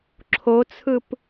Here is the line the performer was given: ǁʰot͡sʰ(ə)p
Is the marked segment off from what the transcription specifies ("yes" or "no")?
yes